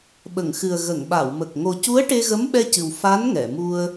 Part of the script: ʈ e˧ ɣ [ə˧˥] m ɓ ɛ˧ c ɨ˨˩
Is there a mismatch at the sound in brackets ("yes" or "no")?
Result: no